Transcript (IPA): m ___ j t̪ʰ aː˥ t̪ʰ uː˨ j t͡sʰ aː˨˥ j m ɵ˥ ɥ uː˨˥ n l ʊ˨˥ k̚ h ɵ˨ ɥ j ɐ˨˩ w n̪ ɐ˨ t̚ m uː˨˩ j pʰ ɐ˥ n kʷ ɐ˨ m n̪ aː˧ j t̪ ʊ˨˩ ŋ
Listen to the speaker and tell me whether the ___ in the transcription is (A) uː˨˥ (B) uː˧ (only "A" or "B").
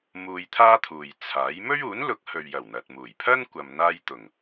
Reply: B